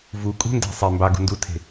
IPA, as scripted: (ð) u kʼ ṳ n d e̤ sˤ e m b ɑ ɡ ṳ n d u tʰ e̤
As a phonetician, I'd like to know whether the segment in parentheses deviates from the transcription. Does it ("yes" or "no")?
yes